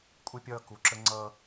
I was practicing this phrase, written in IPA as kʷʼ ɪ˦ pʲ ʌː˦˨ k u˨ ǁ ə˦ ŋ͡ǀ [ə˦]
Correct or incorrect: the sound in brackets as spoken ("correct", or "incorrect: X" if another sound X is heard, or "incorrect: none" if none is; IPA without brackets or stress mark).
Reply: incorrect: ʌ˦